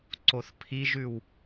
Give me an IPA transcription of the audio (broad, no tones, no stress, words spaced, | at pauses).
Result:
ǀoθpʰiʒʉw